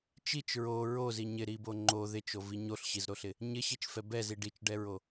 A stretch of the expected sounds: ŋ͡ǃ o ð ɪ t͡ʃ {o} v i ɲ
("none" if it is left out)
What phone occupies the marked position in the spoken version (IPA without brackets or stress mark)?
o